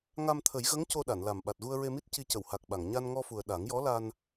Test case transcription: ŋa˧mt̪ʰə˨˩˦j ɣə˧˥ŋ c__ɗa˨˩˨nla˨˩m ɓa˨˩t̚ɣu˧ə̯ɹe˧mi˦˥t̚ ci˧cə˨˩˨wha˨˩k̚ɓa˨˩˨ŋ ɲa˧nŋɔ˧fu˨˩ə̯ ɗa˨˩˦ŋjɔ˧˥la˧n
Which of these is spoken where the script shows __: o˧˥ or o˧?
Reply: o˧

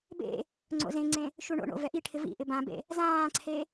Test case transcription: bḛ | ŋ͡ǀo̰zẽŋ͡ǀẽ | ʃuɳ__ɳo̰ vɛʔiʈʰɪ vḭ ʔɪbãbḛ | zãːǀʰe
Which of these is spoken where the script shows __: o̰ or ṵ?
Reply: o̰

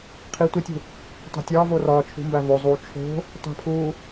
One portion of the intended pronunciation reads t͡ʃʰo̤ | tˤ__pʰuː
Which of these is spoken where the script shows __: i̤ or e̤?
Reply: i̤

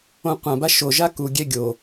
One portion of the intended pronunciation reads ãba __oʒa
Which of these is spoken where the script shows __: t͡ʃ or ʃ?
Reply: ʃ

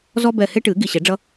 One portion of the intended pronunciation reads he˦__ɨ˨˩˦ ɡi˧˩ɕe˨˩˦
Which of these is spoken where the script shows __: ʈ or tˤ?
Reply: ʈ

